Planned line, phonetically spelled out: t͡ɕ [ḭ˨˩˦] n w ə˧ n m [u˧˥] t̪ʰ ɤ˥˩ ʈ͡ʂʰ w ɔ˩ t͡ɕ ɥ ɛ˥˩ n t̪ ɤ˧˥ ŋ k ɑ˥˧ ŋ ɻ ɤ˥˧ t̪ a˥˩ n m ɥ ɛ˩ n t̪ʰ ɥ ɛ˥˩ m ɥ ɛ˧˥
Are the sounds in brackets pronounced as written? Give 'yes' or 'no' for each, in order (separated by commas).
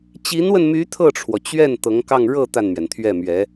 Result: no, no